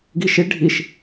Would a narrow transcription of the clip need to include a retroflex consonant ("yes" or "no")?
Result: yes